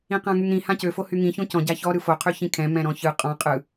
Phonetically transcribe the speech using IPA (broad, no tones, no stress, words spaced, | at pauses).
ĩqãŋyŋɾĩ hãcø fohyŋĩ çõcɔ̃ ɟaçɔ ɾɯfo qʰyçĩkʰɛ̃ mɛ̃ɾɔ̃çɯ qʼɔ̃ qʼɯ